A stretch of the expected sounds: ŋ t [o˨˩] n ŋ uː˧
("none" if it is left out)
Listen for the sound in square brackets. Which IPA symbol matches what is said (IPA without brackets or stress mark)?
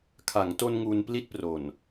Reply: o˧